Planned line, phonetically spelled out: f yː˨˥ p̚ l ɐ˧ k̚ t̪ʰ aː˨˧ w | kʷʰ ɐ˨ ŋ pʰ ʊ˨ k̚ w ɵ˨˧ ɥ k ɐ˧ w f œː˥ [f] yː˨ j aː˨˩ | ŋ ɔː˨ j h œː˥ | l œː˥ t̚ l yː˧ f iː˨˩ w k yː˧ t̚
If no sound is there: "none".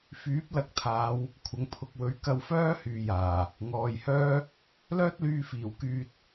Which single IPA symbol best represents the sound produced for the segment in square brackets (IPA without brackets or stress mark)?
h